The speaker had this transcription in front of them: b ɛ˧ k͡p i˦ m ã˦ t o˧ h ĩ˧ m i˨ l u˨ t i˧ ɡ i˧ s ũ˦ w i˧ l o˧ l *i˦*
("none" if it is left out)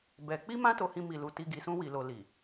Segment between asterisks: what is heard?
i˨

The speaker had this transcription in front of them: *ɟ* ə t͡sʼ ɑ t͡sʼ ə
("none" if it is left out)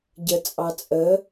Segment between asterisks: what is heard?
ɟ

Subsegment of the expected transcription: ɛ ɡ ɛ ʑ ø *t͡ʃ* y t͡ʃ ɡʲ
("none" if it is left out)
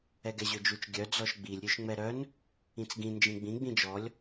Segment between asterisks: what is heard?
d͡ʒ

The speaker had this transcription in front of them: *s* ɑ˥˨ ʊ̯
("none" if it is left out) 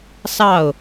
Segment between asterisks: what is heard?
s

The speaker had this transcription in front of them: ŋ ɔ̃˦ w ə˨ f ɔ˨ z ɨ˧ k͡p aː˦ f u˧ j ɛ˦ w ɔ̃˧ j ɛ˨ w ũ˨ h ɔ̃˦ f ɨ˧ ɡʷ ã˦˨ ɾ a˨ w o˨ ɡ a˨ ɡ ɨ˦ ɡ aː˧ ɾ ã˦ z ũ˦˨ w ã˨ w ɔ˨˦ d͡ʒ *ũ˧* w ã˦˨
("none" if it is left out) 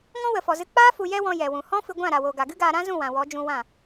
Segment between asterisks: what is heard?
ũ˧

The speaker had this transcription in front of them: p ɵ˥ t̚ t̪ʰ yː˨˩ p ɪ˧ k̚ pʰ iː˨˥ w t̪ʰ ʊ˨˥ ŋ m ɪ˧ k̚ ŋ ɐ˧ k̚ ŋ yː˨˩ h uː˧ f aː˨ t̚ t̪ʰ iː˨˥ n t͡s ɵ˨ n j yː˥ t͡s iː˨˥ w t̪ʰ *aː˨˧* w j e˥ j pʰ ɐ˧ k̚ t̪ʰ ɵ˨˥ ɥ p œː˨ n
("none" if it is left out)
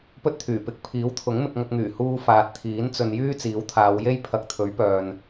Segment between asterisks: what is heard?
aː˨˧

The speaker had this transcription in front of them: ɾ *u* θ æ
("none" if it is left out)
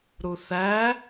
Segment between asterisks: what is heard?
u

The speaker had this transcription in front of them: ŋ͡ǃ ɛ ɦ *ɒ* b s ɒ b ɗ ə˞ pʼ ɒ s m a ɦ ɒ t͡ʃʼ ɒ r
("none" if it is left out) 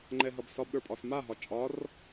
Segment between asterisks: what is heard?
ʌ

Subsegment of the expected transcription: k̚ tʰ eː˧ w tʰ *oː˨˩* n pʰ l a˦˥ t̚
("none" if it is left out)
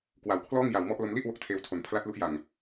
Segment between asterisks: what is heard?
o˨˩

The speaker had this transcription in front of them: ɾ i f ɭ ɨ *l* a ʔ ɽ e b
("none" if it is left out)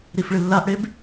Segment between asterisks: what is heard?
lː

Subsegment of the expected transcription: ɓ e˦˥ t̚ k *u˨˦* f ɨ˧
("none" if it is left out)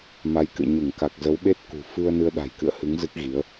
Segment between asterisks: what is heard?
ṳ˨˩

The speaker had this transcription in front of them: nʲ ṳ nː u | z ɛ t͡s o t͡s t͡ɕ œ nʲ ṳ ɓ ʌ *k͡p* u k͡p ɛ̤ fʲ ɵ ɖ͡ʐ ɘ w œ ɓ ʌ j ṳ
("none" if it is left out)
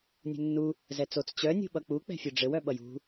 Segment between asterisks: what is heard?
k͡p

